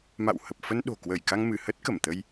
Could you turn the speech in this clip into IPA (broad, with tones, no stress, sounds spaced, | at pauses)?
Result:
m a̰˧˨ w h ə˨˩ p̚ f ə˧ n ɗ o̤˨˩ k w ə˧˩ j k a˧ ŋ m ɨ˧˩ h ə˦˥ t̚ k ə˧˩ m t̪ ə˧ j